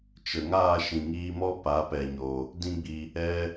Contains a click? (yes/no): no